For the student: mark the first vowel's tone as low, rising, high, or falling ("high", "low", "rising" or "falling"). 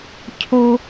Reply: high